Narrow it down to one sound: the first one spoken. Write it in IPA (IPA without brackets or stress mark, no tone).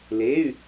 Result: l